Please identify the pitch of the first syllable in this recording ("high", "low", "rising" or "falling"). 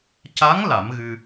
rising